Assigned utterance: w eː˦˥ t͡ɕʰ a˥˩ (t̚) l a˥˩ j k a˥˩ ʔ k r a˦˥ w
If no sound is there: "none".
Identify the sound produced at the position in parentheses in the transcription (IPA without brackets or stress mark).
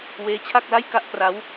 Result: k̚